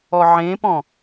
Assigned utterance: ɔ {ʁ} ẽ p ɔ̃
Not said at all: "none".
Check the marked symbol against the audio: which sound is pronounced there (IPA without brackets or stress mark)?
ʕ